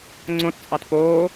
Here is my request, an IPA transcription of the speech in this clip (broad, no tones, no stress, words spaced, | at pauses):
ŋ͡ǀõtt͡sʼɑt poː